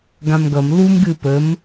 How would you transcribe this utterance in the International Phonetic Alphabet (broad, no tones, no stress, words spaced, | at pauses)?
ɡãmɡʌm lum ɡɨpəm